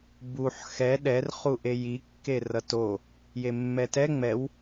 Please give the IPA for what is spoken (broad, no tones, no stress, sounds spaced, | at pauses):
b u ħ x ɛ ɗ ɛ r χ u ʔ e j i kː e r ʌ t o | j e mː ɛ t ɛ ŋ͡m ɛ w